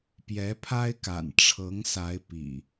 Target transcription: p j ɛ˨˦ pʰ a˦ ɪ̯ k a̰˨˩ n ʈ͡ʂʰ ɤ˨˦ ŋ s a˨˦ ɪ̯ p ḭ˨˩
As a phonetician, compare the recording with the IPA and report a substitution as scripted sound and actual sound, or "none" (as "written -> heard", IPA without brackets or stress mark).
none